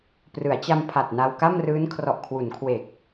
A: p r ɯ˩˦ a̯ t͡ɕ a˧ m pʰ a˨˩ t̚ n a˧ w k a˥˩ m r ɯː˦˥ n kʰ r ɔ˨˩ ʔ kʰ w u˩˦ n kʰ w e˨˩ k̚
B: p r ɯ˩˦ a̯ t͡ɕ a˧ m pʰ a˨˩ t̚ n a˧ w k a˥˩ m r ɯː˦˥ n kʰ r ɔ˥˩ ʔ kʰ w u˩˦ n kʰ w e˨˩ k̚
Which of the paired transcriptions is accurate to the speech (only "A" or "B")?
A